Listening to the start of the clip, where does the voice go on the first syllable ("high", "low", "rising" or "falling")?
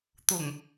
low